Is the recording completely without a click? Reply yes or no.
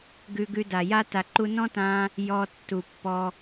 no